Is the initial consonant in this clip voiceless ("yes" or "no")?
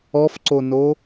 yes